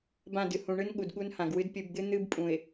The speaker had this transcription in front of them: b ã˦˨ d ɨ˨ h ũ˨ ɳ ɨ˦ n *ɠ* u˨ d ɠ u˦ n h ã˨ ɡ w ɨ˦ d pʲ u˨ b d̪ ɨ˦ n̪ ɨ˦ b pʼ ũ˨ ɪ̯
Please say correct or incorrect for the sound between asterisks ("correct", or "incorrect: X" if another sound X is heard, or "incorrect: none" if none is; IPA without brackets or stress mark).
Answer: correct